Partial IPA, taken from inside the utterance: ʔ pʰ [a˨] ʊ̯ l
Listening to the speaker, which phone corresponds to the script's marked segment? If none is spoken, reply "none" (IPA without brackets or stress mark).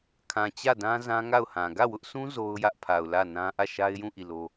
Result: a˨